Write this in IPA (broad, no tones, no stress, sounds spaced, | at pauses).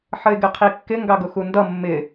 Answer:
ħ ə ɪ̯ ɡ ɪ qʰ i kː ɪ ŋ ɡ ɑ ɡ ʊ x u n d ʌ mː ɪ